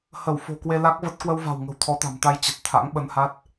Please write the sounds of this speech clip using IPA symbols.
h ə˧˩ w f o̤˨˩ k w e˧ l a˦˥ k̚ v ə˦˥ t̚ k w ə˧ w v a̤˨˩ w ŋ ə̤˨˩ w t̪ʰ ɔ˨˦ t̪ a̤˨˩ m t̪ a˧ j t͡ɕ ə˨˩ t̚ t̪ʰ a̰˧˥ ŋ ɓ ə˧ n h a˦˥ t̚

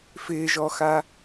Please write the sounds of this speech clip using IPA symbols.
f ɪː ʒ ɔ x a

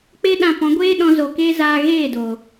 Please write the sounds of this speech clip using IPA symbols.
k͡p e˦ ɗ ã˧ p ɔ̃˨˦ ɡʷ eː˦ ɗ ɔ̃˦ z o˧ k eː˦ z aː˧ ɣ eː˦˨ d oː˨

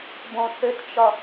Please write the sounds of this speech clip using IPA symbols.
b õ θ ʏ t t͡ʃ ɒ

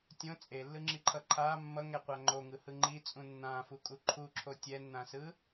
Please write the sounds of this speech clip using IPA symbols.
tʲ õ t͡sʼ e lː ɯ ŋ͡ǁ i ǃʰ ʌ ǃʰ a mː ʌ ŋ ɛ qʷ a ŋ͡ǃ o ŋ ɯ h ɯ ŋ͡ǃ i t͡sʼ ũ nː ã f u kʼ u ǃʰ u ǁʰ o tʲ ɛ nː ã s ɯ

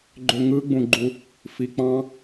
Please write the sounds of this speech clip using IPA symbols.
ɡ͡ǃ ø ŋ ɯ ɡ͡b ũ ɡ͡ǃ u | f i k͡p ɑ̃

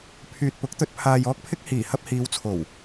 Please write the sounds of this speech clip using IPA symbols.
pʰ yː˨ t̚ p ʊ˨˥ k̚ t̪ ɵ˧ t̚ pʰ aː˨ j ɔː˥ k̚ pʰ ɪ˥ k̚ h iː˨˩ h ɐ˧ p̚ h iː˨˧ w t͡sʰ o˨˩ w

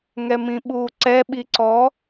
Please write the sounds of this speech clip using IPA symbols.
ŋ ɛ m ĩ ɓ uː ǀ ɛ ɓ i ǀ ɔ

